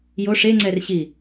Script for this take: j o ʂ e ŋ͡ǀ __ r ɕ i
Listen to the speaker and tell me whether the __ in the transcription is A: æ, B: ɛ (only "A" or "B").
B